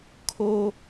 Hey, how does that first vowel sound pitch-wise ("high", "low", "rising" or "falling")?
high